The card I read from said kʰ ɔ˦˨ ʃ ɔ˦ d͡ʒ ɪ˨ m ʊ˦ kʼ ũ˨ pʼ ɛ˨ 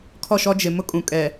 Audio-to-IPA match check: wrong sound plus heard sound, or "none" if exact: pʼ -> kʼ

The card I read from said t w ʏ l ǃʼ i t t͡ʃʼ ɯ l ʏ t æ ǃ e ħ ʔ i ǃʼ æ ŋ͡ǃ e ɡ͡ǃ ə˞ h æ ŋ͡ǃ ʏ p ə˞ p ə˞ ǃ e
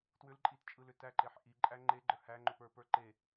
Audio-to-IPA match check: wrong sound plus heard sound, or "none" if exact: none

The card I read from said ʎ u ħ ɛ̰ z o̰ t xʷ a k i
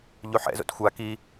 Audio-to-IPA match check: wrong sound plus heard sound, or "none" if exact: none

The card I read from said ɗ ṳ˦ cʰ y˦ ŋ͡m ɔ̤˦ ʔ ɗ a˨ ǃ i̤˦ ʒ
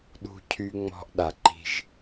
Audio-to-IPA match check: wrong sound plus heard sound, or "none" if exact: none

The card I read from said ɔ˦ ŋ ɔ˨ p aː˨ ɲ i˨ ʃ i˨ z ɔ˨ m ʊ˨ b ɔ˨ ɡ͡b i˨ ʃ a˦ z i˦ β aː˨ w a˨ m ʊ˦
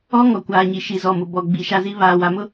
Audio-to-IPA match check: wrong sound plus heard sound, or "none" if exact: p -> kʷ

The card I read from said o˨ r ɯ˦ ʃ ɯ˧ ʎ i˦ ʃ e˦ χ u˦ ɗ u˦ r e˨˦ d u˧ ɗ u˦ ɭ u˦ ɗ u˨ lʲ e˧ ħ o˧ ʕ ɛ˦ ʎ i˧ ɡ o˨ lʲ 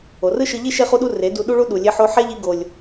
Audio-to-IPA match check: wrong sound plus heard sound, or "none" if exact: ʕ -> ħ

